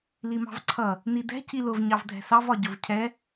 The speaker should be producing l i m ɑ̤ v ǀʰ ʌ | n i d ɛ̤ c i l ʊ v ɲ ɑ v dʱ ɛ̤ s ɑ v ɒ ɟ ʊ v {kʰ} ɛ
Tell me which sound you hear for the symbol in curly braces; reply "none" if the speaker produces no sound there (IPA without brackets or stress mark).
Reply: cʰ